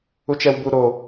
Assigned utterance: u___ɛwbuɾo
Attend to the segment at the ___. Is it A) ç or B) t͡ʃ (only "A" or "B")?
B